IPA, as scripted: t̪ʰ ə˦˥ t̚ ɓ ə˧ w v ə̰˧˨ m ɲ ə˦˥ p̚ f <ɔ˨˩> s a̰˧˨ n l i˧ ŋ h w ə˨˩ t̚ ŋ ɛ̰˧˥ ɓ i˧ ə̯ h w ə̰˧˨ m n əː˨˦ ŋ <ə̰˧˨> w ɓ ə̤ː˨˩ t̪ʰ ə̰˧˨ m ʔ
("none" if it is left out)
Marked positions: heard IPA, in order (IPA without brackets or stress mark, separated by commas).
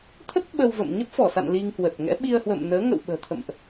ɔ˧˩, ə̰˧˨